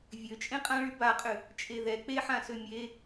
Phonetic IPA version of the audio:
vʲ ø t͡ʃʼ ẽ qʼ ã ɭ y b a qʼ ʏ | t͡ʃʼ e ð ɛ k͡p e ħ ã s ø mʲ e

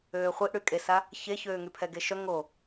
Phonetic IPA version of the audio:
øː χʷ i ʔ ɽ y kʼ e s a | ç e ç øː ŋ y pʰ ɛ ɡ e ʃ œ ŋ o

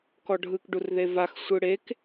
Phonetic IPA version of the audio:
k ɔ ɖʱ ɯ k ɖ u r ð e v a x sʷ ɯ ɽ e k

